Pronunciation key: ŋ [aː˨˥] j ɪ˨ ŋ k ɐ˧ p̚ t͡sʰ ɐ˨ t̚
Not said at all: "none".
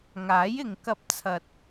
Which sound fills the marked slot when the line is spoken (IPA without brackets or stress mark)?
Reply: aː˨˥